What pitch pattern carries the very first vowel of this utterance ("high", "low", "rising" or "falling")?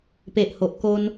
low